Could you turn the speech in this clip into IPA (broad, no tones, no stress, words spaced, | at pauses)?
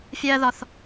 fʲɜðɒθ